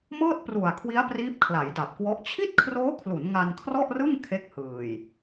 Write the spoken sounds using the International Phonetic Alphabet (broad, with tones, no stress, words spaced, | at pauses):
mɤː˥˩t̚pru˨˩a̯kʰwi˦˥a̯ priː˦˥p̚kʰla˩˦jda˨˩p̚kwɔ˦˥ʔ t͡ɕʰi˥˩t̚kʰroː˦˥kʰlu˩˦n ŋa˧nkʰrɔ˥˩ʔrɯ˥˩ŋ kʰe˦˥k̚hɯː˨˩j